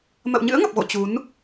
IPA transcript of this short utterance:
mə̰˧˨wɲɨ̰˧˥ə̯ŋə˨˩p̚ɣo̰˧˨ t͡ɕu˨˦n

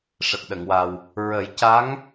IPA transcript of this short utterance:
ʂə˨˩k̚ɗə˨˩˨ŋwa˨˩w | ɹə˨˩˦jca˧˥ŋ

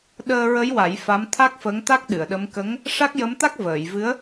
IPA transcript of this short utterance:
ɗəː˧ɹə˧˥jwa˨˩˦j fa˧˥mt̪ʰa˦˥k̚ fə˧˥ŋt̪a˦˥k̚ɗɨ˨˩˨ə̯ɗə˧˥m kə˧˥ŋ | ʂa˦˥k̚jə˧˥mt̪a˦˥k̚ vəː˨˩˨jvɨ˧˥ə̯

